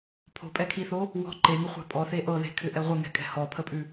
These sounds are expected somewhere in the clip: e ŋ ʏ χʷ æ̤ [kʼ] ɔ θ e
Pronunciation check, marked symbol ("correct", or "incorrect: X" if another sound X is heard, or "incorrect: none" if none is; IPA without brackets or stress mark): incorrect: pʼ